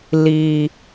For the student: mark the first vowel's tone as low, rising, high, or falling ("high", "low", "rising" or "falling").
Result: low